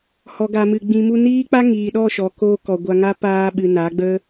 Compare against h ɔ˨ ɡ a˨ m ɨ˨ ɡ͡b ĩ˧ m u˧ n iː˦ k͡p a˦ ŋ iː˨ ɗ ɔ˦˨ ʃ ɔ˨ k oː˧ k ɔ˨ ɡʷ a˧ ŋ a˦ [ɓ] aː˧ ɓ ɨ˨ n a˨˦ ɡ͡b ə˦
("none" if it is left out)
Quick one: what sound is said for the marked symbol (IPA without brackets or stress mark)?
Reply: p